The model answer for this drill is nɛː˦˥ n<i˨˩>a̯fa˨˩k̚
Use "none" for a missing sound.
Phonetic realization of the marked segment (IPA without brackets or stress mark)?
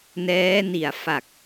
i˨˩